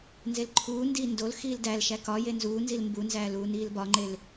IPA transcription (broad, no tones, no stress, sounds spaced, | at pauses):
n z e l ǃʰ uː n d iː n d o l x iː l d æ l ʃ æ k ɒ j e n z uː n z i l m b u n z æː l uː n iː l b ɒ ŋ͡ǃ e l